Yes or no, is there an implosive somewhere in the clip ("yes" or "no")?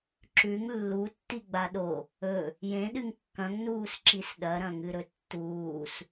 yes